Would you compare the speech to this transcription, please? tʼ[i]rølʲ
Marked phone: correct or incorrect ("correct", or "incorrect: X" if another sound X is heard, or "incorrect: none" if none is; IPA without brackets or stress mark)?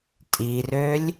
correct